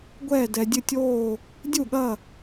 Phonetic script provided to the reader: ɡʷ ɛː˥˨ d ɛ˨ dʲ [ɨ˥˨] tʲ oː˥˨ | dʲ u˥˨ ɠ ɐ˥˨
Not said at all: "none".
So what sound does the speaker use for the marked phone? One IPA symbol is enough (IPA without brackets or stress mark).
ɨ˥˨